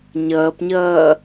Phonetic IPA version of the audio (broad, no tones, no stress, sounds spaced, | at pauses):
ɲ ʌː p ɲ ʌː